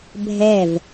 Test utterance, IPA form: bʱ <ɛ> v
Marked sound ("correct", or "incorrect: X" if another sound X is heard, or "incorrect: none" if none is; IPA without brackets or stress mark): correct